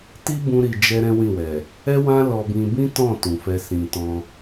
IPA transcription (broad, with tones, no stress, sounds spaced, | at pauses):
t i˦ b ũ˧ ɾ i˨ d͡ʒ ɛ˧ ɾ ɛ̃˦ w ĩ˦˨ w ɛ˨ | ɛ˦ w ã˦ l ɔ˦ b ĩ˦ b ĩ˦ t ɔ̃˦˨ t ũ˨ f ɛ˧ s ĩ˧ t ɔ̃˦